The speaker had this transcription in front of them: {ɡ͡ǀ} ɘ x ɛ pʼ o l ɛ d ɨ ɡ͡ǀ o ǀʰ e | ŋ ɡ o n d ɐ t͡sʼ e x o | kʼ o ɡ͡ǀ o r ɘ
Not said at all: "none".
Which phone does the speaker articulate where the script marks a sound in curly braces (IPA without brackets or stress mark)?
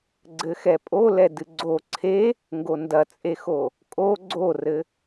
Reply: ɡ͡ǀ